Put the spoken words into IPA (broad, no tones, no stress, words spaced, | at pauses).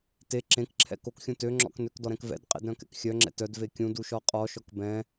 te ǁẽkǁʰɛ̰ kokxʲũ tøŋ͡ǁɔ̰k nøkdɔɾɛ̃k vɛ̰dqʼḛdɾœ̃kɛ̰k xʲœŋ͡ǁɛ̰ tœdve kʲũduʃɔ qʼɔʃɔk bɛ̃